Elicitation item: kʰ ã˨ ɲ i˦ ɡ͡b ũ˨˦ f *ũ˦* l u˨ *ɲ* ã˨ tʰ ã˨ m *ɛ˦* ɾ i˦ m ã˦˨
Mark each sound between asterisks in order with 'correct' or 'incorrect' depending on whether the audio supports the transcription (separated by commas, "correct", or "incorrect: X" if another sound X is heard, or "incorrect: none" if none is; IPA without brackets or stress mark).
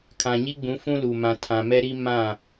correct, incorrect: m, correct